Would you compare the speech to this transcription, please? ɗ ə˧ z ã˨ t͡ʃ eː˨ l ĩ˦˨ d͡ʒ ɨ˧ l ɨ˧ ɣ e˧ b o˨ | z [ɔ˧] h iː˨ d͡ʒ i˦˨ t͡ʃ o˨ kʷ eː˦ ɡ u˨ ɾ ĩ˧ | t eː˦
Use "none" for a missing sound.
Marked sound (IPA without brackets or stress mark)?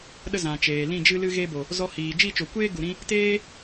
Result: ɔ˧